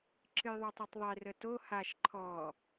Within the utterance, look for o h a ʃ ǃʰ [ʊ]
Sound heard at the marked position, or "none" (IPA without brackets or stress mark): ɔ